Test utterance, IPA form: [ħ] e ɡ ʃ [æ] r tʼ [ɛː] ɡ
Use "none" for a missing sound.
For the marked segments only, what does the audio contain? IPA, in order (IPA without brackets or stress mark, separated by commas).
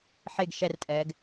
ħ, ɛ, ɛː